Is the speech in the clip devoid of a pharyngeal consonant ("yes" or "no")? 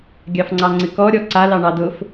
yes